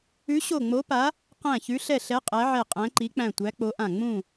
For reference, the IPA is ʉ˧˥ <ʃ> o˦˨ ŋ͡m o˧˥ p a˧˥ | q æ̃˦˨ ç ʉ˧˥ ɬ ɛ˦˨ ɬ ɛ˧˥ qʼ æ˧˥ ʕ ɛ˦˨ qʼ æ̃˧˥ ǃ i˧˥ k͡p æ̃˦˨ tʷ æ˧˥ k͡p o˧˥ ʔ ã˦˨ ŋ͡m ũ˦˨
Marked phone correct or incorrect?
incorrect